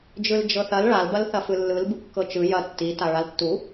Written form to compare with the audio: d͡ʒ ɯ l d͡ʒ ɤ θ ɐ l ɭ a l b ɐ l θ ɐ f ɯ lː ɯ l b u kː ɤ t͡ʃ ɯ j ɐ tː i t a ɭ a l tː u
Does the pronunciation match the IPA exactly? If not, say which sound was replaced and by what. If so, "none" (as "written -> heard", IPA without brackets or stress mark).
none